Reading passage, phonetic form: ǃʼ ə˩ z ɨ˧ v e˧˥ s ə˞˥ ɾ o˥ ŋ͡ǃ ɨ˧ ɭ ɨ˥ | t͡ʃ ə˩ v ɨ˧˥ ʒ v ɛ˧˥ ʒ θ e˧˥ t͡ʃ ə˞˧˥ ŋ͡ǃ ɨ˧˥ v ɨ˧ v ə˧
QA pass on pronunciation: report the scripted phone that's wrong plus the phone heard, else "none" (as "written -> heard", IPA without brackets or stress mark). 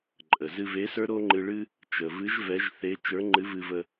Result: none